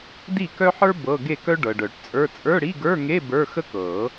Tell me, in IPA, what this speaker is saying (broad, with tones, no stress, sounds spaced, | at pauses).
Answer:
d i˥˨ k œ˥ ħ ə˞˥ b ɤ˧˥˧ ɡ e˥˨ k œ˥ ɖ ɤ˨ ɖ œ˨˩˦ ʈ t͡sʼ ə˞˧˥˧ t͡sʼ ə˞˧˥˧ ɽ i˧˥˧ ɡ ə˞˧˥˧ ŋ e˧˥˧ b ə˞˧˥˧ x ə˥ k ɤ˨˩˦